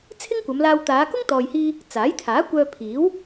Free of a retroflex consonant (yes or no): yes